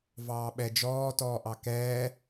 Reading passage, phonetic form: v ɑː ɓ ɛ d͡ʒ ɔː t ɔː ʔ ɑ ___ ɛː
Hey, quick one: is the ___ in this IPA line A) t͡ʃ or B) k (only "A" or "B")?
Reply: B